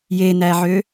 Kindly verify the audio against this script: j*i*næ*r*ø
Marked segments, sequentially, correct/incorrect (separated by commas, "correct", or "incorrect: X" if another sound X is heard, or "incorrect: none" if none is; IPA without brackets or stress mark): incorrect: e, incorrect: ʕ